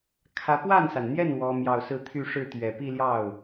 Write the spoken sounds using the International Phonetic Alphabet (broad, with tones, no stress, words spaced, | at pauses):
kʰä˧˥ pwa˥˩nsa˩nn̪jɛ˥˩n wɔ˥mjɑ˥˧ʊ̯ sɹ̩˥˧t̪ʰy˥˧ʂɻ̩˥˩ t̪ɥɛ˨˩pi˥˧ljɑ˥˩ʊ̯